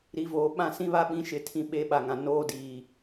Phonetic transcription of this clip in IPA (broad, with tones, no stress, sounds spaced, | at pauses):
ɾ i˨ v oː˨ ɓ ã˦˨ s ĩ˦ β a˦ ɓ ĩ˦ ʃ ɪ˦ tʰ ĩ˦ ɓ e˨˦ ɓ a˨ ŋ ã˨ n oː˦ d iː˨